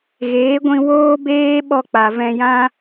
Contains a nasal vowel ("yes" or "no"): yes